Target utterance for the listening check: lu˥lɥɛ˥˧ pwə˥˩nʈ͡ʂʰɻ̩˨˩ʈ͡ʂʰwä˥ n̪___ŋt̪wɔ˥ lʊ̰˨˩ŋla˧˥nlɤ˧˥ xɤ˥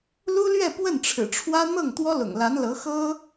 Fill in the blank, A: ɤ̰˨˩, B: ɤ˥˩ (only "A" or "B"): B